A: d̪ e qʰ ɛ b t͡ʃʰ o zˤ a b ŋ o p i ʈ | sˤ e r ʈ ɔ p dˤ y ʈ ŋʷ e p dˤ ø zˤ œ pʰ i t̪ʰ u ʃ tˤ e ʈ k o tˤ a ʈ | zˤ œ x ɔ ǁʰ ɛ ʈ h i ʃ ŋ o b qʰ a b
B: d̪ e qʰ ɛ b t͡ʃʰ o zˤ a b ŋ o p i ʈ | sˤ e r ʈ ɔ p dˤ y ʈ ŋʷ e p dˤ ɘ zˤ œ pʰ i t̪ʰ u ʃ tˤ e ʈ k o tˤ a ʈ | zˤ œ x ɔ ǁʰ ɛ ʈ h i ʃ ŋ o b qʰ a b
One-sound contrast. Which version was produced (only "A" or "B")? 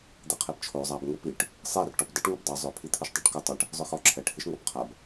A